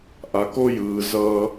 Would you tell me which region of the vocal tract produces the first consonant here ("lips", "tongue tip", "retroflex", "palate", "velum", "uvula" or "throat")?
throat